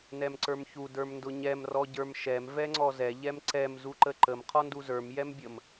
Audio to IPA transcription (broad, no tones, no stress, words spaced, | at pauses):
nɛmǀə˞mçu də˞mndʊɲɛm rɔɟə˞mʃɛm vɛŋ͡ǀɔzɛ ʎɛmǀɛm zuǃəǃəm qʰɔnduzə˞m jɛmbʲəm